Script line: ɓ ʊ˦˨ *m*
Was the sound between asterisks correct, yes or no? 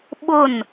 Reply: no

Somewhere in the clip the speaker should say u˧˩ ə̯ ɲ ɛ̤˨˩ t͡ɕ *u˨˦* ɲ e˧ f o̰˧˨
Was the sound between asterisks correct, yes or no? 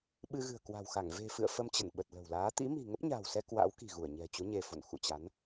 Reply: yes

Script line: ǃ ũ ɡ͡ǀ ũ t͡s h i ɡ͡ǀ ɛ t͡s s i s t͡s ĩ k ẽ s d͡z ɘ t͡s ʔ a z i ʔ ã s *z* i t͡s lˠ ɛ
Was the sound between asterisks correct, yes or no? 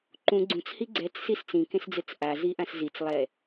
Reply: yes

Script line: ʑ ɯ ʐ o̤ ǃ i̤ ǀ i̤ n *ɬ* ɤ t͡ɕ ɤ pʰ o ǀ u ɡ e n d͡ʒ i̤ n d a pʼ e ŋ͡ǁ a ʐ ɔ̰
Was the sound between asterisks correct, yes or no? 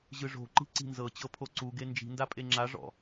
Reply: no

